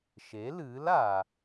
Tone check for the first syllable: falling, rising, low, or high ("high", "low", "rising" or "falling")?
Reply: rising